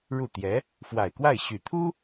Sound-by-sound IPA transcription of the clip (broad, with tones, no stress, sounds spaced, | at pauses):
ɻ u˥˩ t̪ j ɛ˧˥ | f w a˨˩ ɪ̯ k w a˥˩ ɪ̯ ɕ y˨˩ t̪ʰ u˥